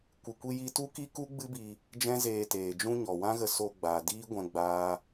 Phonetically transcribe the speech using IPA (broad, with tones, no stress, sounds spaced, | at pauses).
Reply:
kʷ ɨ˧ kʷ i˦ j i˦ t u˦ k i˦ k u˦ ɡ͡b ɨ˦ b i˧ | d͡ʒ ɛ̃˦ z eː˧ t eː˨ d͡ʒ ũ˦ ɲ ɔ˨ w ã˦ ɣ ə˧ s o˧ ɡ͡b a˨ d iː˦ ɡʷ ɛ̃˧ ɡ͡b aː˦